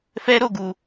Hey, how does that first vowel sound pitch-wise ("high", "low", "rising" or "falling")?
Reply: high